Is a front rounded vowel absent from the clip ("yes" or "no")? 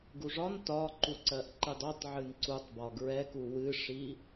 yes